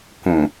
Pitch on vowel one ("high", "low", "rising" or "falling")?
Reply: low